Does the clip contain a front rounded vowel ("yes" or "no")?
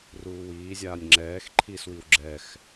no